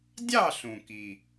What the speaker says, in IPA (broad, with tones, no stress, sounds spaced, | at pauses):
dʲ ɑ˥˨ ɬ ũ˩ k i˩